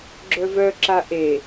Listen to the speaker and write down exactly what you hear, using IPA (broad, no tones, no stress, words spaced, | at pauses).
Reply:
ɡ͡ǁœvœǁa ʔe